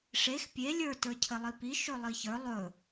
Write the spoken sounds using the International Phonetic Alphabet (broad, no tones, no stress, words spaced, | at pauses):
ʂex pʲe lʲə˞ tə˞cʰɘlˠipi ʃɵlˠiçə˞ lˠɵ